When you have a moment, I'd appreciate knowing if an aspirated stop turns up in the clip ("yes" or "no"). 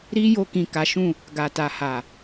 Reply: no